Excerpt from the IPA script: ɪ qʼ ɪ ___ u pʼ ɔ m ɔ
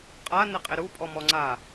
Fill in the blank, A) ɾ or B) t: A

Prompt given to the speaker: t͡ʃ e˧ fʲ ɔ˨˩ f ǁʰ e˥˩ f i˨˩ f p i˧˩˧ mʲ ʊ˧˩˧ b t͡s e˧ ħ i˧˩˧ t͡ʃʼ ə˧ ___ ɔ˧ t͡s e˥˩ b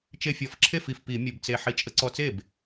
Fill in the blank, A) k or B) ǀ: B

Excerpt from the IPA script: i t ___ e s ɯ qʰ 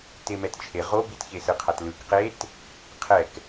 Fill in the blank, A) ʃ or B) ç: B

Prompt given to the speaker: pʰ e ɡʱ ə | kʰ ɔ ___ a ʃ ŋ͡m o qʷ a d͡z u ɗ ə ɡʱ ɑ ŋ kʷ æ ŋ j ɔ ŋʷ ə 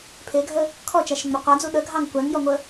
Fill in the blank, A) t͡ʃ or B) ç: A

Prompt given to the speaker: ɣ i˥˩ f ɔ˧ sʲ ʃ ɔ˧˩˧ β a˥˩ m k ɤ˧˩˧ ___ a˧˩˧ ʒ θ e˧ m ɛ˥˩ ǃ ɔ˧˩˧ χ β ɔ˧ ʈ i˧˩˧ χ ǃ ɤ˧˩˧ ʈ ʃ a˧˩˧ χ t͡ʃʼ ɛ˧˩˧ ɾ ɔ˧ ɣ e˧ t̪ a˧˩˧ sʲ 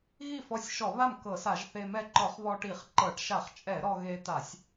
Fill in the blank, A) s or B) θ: A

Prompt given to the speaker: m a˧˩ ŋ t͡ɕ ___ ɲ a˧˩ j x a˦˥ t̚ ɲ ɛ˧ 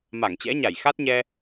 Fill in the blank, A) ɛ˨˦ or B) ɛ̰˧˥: B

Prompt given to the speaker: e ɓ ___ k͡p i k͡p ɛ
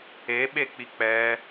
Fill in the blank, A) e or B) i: A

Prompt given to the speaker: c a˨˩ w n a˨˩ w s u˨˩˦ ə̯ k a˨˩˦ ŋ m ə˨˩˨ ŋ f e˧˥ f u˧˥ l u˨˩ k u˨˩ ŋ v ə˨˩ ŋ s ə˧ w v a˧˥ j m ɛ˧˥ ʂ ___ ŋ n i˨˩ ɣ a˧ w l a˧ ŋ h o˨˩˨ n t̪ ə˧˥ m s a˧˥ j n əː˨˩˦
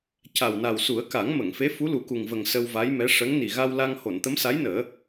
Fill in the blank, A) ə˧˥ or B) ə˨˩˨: A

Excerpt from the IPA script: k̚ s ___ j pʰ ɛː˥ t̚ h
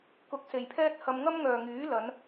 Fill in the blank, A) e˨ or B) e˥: A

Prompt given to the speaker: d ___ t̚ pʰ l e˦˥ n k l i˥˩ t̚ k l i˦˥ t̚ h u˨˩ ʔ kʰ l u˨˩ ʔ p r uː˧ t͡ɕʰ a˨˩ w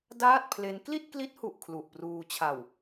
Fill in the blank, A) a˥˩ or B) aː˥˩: B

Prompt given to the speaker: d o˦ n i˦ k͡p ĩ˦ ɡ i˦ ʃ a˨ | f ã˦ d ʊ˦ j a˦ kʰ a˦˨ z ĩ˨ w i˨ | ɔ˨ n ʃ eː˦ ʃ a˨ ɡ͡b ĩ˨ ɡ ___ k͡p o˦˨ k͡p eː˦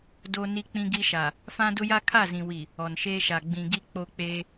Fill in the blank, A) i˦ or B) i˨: A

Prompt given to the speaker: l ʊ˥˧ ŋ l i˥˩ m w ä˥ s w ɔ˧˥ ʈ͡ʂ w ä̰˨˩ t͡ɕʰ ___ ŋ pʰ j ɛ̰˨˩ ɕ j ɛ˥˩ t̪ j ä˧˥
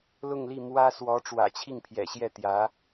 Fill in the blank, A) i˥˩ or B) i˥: A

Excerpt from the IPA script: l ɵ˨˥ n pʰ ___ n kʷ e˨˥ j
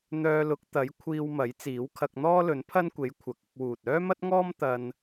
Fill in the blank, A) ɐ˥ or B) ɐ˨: A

